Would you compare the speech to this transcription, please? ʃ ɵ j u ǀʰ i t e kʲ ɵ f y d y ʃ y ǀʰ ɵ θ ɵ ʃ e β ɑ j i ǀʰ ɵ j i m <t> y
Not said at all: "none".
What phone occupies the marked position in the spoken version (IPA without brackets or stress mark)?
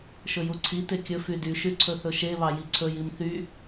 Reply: θ